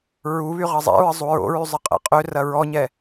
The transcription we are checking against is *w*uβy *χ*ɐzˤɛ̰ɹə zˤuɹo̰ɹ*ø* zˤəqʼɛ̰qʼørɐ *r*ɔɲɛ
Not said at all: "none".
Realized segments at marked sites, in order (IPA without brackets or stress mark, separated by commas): ɹ, ʁ, y, ɹ